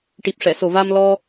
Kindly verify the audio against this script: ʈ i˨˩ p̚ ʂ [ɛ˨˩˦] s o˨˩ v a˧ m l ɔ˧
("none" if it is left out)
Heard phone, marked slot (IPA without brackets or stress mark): ɛ˨˩˨